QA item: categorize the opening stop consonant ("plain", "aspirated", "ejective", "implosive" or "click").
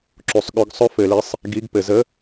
click